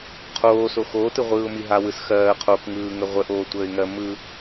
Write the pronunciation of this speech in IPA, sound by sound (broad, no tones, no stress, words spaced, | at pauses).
qʰoːso xoːtɯʁʷɯːʊ̯mi ɦawɯs xɜː qʰokŋɯːŋə ʁʷəʔoːtʷəːɪ̯ŋɜ mɯ